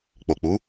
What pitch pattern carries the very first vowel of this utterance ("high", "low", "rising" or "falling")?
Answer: low